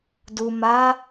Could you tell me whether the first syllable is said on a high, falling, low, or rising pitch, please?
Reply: low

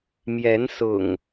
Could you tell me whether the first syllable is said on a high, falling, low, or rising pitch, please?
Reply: rising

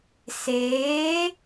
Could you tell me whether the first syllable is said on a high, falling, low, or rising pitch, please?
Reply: rising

